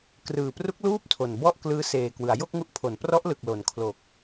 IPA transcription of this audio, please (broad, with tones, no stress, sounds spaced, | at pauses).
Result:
k r ɯː˨˩ p r u˦˥ k̚ l uː˥˩ p̚ tʰ o˨˩ n b ɔ˥˩ ʔ k l ɯː˦˥ s eː˨˩ k w ɯ˩˦ a̯ j o˥˩ k̚ ŋ u˦˥ ʔ pʰ o˩˦ n p r ɔ˦˥ ʔ l ɯ˨˩ k̚ l o˩˦ n kʰ l o˨˩ k̚